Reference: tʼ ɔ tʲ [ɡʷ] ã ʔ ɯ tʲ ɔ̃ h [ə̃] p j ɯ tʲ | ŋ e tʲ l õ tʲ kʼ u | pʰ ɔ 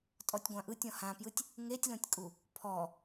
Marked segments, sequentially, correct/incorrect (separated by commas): correct, incorrect